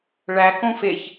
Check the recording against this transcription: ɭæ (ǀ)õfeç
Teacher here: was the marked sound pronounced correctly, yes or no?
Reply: no